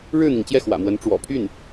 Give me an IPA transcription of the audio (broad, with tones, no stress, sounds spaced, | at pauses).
ɻ ɻ̩˥˩ n̪ i˩ ŋ t͡ɕ j ɛ˥˩ x w ä̰˨˩ m w ə˧˥ n ʈ͡ʂ w ɔ̰˨˩ pʰ y˥˩ n